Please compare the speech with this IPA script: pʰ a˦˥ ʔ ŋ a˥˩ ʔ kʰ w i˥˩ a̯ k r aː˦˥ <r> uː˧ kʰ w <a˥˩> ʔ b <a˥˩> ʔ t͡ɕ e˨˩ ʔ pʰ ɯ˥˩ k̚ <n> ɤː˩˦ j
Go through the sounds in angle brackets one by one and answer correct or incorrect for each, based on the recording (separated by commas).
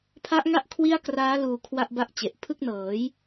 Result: incorrect, correct, correct, correct